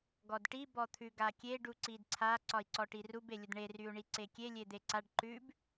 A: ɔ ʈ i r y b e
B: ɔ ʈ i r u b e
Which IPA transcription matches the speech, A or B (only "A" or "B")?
B